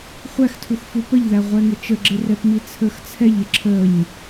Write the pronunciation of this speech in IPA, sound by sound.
χʷ æ x tʰ u x f u p ə ʎ ð æ ʁʷ ɛ ŋ ɪ t͡ʃ ə ɡ͡ǁ ɪ r ɛ p m i t͡sʰ ə˞ x t͡sʰ ɛ ʎ ɪ ǁʰ ə ɲ

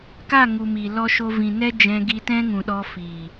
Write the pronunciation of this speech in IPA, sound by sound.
k a˦˨ ŋ u˨ m i˨ l ɔ˧ ʃ o˧ v ĩ˨ n ɛ˦ d͡ʒ ɛ̃˧ ɡ i˧ t ɛ̃˦ ŋ ũ˨ ɗ ɔ˧ f i˨

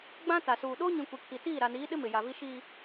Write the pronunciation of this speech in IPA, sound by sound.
ɡ͡b ã˦ t a˨ s uː˨ ɗ oː˦ ɲ ĩ˨ kʷ i˨ kʰ i˨ t iː˦˨ ɾ a˨ n iː˨˦ ɗ ɪ˦ m ɪ˨ j a˨ v i˦ ʃ iː˨

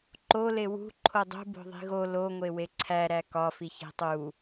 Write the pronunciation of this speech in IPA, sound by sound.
ǃ o l e w ṳ ǃʰ o dˤ ṳ b o̤ ðˤ i̤ ɣ o l o ŋʷ e w e ǀʰ æ ɾ æ k ɒ f i ç e̤ tˤ u

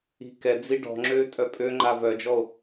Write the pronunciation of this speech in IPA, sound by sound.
i̤ k ɛ d͡z i ɖ ɔ̤ ŋ͡ǁ øː tʼ œ pʼ ø ŋ͡ǃ a v œ d͡ʒ ɔ o̯

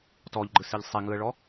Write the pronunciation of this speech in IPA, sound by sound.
t ɔ ʎ ɡ͡ǃ ɯ s i ʎ sˤ i ŋ ɯ ə̯ ɭ ɔ

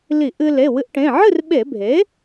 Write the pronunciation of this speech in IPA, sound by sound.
l i˧˩˧ ʔ ɨ˧ l e˩˧˩ w ɨ˧ ʔ ʈ ẽ˩˧˩ ʕ ɨ˥˨ r ɓ e˧˩˧ bʱ e˩˥

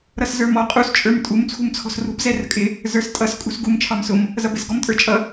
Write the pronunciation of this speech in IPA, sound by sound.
ɾ ʌ s z ə˞ m ɔ qʼ u s t͡ʃʼ ə˞ m tʼ u m t͡sʰ ṳ m t͡sʰ ɔ̤ s r ṳ b z ɛ r ə̤ kʼ ɪ | z ə˞ s tʼ ʌ s kʼ ṳ s ɡ u m t͡ʃʰ ɑ m s ʊ m | z ʌ b ɪ s ɡ ɔ m tʼ ə˞ t͡ʃʼ ʌ

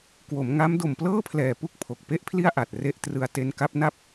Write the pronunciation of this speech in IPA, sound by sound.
k w o˩˦ m ŋ a˦˥ m d o˨˩ m p l ɤː˥˩ pʰ l ɛː˨˩ p u˥˩ k̚ pʰ o˨˩ k̚ p e˥˩ ʔ pʰ l i˥˩ a̯ ʔ a˨˩ t̚ r e˦˥ ʔ t r ɯ˧ a̯ t e˦˥ n k a˦˥ p̚ n a˥˩ p̚

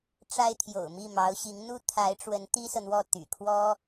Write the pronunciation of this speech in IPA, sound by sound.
ʈ͡ʂ a˥ ɪ̯ t̪ʰ j o̰˨˩ ʊ̯ m i˥˩ m ɑ˧˥ ʊ̯ ɕ i˧˥ ŋ n̪ u˥ t̪ʰ a˧˥ ɪ̯ ʈ͡ʂ w ə˧˥ n t̪ i˥ s ɤ˨ n̪ w ɔ˥˩ t̪ y̰˨˩ kʰ w ɔ˥

